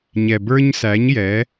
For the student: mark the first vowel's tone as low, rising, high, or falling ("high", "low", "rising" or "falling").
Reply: low